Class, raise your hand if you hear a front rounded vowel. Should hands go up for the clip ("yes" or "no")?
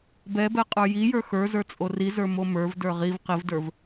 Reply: no